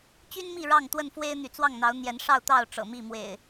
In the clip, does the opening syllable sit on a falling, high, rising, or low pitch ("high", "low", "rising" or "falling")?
high